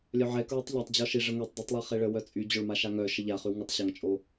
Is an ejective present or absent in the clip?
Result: present